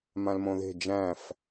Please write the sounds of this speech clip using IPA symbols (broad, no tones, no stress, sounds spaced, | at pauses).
m ã l m õ ð e̤ d͡ʒ æ̃ f